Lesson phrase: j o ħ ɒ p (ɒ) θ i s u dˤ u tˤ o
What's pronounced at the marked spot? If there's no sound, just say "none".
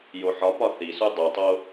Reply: ɒ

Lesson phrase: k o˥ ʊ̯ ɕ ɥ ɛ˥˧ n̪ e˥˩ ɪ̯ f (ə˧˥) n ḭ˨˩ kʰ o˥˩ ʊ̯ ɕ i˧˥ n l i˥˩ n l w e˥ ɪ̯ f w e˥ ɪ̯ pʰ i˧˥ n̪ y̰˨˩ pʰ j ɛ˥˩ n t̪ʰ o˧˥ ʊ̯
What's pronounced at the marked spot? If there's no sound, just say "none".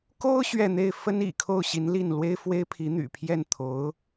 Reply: ə˥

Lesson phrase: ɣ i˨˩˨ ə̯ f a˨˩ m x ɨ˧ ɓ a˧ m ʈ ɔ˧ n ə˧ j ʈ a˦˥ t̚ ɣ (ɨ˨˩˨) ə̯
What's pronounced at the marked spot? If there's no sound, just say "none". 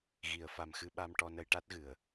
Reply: ɨ˨˩˨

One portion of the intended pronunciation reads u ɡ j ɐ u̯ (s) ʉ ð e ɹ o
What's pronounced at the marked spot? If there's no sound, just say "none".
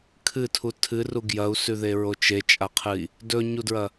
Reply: s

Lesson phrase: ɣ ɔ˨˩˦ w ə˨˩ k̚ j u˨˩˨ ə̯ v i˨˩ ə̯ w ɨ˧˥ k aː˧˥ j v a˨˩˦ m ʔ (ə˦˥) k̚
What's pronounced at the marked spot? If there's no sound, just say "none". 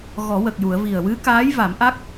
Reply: a˦˥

